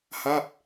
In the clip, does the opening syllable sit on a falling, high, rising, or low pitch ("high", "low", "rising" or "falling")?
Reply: falling